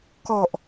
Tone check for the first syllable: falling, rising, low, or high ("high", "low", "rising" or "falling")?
low